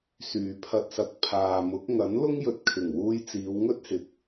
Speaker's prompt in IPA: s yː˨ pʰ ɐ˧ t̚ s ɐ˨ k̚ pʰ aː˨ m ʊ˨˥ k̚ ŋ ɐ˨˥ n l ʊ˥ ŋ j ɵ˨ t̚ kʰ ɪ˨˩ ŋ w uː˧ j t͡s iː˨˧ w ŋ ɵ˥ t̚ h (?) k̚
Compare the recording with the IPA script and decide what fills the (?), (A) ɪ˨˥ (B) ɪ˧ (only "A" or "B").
A